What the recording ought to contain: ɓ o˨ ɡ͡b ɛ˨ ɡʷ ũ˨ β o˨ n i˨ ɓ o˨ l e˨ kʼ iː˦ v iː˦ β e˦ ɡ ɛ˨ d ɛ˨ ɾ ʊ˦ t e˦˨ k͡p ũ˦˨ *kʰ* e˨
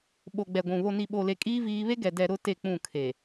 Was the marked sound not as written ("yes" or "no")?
no